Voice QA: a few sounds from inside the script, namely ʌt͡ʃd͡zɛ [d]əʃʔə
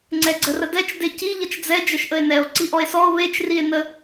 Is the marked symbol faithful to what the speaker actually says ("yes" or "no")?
no